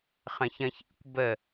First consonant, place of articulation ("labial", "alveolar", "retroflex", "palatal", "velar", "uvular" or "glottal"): uvular